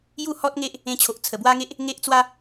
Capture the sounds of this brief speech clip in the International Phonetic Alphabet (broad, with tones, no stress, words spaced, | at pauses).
ju˥˧hɔ˦t̚ŋe˦ʔ | ẽ˧t͡ɕʰo˨ʔ t͡sʰə˨˩bwa˦ŋe˦ʔ | ŋe˦ʔt͡swa˦